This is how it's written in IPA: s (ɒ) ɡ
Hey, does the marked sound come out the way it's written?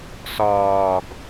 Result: no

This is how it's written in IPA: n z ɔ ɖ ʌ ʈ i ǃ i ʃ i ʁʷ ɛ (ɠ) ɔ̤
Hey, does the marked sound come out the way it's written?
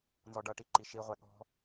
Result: yes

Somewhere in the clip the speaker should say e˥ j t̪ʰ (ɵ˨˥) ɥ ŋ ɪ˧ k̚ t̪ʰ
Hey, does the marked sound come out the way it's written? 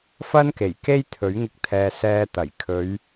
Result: yes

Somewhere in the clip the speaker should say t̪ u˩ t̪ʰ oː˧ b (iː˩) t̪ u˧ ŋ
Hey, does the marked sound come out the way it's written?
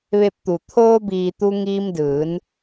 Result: yes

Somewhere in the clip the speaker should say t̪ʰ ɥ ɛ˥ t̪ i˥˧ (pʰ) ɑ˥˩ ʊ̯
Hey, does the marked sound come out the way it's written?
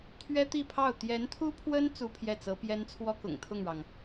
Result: yes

